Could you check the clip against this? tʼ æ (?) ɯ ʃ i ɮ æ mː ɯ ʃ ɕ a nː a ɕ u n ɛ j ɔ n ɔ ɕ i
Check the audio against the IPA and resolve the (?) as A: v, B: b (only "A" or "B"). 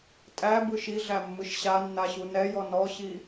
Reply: B